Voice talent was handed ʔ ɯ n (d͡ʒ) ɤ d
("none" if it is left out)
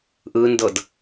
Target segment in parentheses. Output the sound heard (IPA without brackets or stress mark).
d